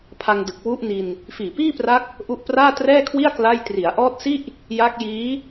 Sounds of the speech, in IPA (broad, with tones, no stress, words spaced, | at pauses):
pʰa˧ŋdɯ˨˩k̚ wu˦˥ʔni˧n | fiː˨˩piː˥˩pra˦˥k̚ | ʔu˦˥ʔpraː˥˩trɛː˥˩kʰwi˥˩a̯ kla˥˩j tri˩˦a̯ʔɔː˦˥t̚si˥˩ʔ | ja˦˥k̚jiː˦˥